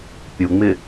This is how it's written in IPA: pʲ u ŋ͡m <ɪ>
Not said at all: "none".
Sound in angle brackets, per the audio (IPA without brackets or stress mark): ɪ